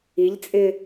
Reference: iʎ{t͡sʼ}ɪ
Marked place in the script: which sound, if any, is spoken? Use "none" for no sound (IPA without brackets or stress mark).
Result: t͡sʼ